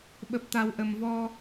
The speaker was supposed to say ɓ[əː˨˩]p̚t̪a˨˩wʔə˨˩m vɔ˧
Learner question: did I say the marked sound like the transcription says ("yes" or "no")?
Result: no